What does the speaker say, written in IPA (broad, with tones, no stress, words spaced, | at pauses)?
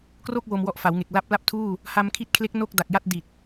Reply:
kro˥˩k̚ wo˧mwɔ˦˥ʔfa˩˦wŋe˨˩k̚ la˦˥p̚la˥˩p̚tʰuː˥˩ | ha˧mkʰi˦˥t̚kʰle˦˥k̚ no˥˩k̚ da˨˩k̚ja˥˩t̚ di˨˩t̚